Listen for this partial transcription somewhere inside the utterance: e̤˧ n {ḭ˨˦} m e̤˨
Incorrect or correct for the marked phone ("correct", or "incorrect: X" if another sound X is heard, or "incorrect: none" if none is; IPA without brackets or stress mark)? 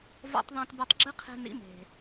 correct